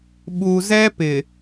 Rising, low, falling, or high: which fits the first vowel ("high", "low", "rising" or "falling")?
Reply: low